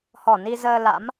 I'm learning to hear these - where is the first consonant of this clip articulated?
throat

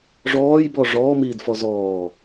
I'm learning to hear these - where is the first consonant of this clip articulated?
retroflex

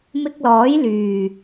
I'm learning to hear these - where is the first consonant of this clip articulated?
lips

